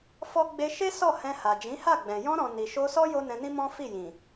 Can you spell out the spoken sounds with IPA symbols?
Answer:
f ɔ˦ ɡ͡b e˧ ʃ e˦ s ɔ˦˨ h ɛ̃˧ h a˨ d͡ʒ ĩ˨˦ h a˦˨ ɡ͡b ɛ̃˨ j ɔ̃˧ ɾ ɔ̃˨ n i˨ ʃ o˧ s ɔ˦ j o˦ n ɛ̃˧ n ĩ˦ m ɔ̃˦ f i˦˨ j ĩ˨

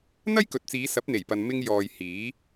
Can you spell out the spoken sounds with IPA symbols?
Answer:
n̪ ɐ˥ j k ɵ˨ t̚ t͡s iː˨˧ s ɐ˨˥ p̚ n̪ e˨˩ j p ɐ˨ n m ɪ˧ ŋ j ɔː˨ j h iː˨˥

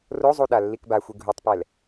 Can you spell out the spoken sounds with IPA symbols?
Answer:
r o zˤ u ɗ a lː i k b a xʷ i ɡʱ u tˤ p ɛ l

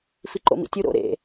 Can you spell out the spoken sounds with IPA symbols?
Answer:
f i ǃ o̰ m ḭ tʲ u ɾ o̰ ɾ ḛ

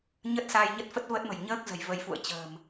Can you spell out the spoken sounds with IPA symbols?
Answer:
ɲ ə˦˥ t̚ s aː˧ j ɲ ə˦˥ t̚ f ə˦˥ t̚ v ə˦˥ t̚ m ə̤˨˩ j ɲ əː˦˥ k̚ z ə̤˨˩ j v ə˨˦ j f ṵ˧˨ ə̯ t͡ɕ ə̤ː˨˩ m

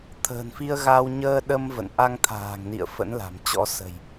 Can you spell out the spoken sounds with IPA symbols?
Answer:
t̪ʰ ə̤ː˨˩ n f i˧ ə̯ ɣ a˧ w ɲ əː˧ ɗ ə˧ m v ə̰˧˨ n ʔ a˧ ŋ t̪ʰ a̤ː˨˩ ŋ n ḭ˧˨ ə̯ f ə̰˧˥ n l a̤˨˩ m t͡ɕ ɔ̰˧˥ s ə̤˨˩ j

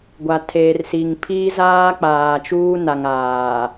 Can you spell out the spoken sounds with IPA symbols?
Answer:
ɡʷ a˨ tʰ eː˨ r s i˨ ŋ pʰ iː˦ z aː˦ k͡p aː˨ t͡ʃ uː˦ n a˨ ŋ aː˨

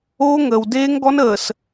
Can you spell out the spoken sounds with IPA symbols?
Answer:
oː˦ ŋ əː˨ w d eː˦ ŋ ɡ ɔ˦ n əː˨ s

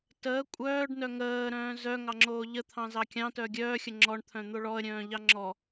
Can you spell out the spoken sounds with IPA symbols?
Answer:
t əː kʷʼ œː ɖ n œ ŋ əː ɾ œ̃ː z œ ŋ ɑ ŋ͡ǁ oː ʎ ə t̪ʰ ɑ̃ z ɑ kʲ ɑ̃ t œ ɡʲ œː xʲ ə ŋ͡ǁ ɔ ɳ t̪ʰ œ̃ n̪ o ɭ ɔ ə̯ ɾʲ œ̃ː ʎ ɑ ŋ͡ǁ ɔ

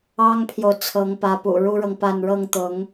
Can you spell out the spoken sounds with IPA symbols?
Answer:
ɑ˥ ŋ pʰ j o˨ ʊ̯ t͡sʰ ɤ˧˥ ŋ p ä˧˥ p ṵ˨˩ ɻ u˥ ɻ ɤ˨ ŋ p a˥˧ n ɻ ɤ˥˩ ŋ t̪ ʊ˧˥ ŋ

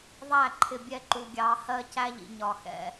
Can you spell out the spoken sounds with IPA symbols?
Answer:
ðˤ æ˦˨ ǃʰ ɪ˨ bʲ ɛ˦ ǃ u˨ ɡʲ ɑ˨˦ h ɜ˦ c æ˦ ʎ ḭ˨ ɲ ɒ˨ x ɛ̰˦

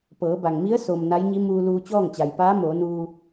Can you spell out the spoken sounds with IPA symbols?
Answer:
p ɤː˩˧ b a˩ ŋ m i˧˥ ə̯ s o˩ m n a˧˥ j ɲ i˧˥ m uː˧ l uː˧ t͡ɕ ɔː˥˨ ŋ t͡ɕ a˩ j p aː˧˥ m oː˩˧ n uː˧

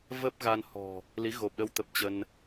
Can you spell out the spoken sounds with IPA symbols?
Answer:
v ə˦˥ p̚ ɣ a˧ n h ɔ̤˨˩ | l i˨˦ ɣ o˨˩ p̚ ɗ ə˧ w t̪ ə˨˩ p̚ t͡ɕ ə˧ n

